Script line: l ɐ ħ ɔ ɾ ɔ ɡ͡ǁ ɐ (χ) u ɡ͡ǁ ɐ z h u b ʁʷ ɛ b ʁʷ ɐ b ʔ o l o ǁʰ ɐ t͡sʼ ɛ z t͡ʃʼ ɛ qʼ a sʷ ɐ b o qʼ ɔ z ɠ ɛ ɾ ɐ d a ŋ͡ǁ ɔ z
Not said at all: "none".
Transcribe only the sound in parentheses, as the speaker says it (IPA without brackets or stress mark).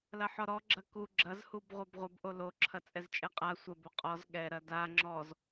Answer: k